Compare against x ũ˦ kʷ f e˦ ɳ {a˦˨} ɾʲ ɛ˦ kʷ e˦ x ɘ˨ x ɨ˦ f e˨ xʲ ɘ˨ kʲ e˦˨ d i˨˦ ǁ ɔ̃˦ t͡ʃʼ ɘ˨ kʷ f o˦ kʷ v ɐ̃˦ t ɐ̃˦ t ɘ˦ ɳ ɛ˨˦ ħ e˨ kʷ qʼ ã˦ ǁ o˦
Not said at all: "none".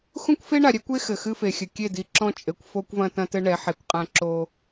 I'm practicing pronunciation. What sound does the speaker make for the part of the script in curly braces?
a˨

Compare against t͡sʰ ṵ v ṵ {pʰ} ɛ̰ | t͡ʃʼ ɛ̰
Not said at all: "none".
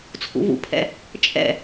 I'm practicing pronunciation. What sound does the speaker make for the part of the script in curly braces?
pʰ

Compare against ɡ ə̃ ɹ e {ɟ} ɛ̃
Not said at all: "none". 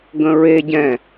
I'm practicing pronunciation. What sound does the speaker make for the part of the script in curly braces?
ɟ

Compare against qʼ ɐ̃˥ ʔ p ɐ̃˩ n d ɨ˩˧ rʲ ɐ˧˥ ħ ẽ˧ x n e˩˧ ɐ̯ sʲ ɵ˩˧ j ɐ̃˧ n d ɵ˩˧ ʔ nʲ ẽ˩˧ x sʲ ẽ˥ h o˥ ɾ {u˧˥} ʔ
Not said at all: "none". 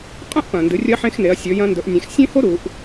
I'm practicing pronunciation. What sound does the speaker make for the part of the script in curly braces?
u˩˧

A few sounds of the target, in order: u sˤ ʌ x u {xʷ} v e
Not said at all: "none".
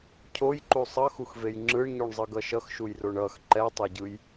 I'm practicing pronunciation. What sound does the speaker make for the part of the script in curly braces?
x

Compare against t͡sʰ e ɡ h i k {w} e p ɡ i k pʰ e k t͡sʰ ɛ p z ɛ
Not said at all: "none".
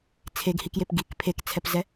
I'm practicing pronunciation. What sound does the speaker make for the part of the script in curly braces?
j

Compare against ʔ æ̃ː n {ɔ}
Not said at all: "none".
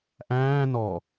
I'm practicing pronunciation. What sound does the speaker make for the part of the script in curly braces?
ɔ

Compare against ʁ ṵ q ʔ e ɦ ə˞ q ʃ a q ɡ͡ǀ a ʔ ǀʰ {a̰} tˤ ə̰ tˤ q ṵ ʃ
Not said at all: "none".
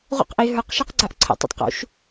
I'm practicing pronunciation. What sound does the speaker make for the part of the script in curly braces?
ə̰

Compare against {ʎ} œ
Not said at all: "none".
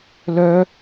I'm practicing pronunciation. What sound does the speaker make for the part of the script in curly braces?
l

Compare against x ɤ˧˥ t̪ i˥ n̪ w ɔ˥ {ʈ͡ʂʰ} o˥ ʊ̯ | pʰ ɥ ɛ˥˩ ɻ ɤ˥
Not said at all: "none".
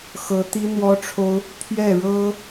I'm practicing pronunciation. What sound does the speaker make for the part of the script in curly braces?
ʈ͡ʂʰ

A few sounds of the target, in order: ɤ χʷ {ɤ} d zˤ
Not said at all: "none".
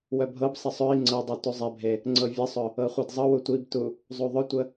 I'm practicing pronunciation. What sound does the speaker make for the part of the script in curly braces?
ɤ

